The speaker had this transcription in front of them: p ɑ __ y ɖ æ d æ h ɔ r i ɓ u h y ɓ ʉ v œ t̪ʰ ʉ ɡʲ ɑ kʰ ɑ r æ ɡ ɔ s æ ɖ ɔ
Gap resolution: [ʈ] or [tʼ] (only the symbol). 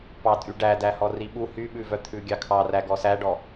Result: tʼ